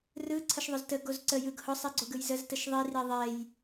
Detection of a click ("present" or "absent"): present